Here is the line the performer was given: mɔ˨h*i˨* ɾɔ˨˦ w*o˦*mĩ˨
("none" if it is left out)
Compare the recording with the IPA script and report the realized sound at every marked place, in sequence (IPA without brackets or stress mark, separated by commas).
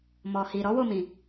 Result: i˨, o˦˨